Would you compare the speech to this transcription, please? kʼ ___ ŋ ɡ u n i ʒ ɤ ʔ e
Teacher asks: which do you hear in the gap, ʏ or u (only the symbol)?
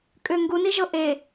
ʏ